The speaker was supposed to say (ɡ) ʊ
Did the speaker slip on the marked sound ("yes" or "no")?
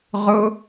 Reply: yes